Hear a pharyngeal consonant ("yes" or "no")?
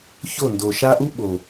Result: no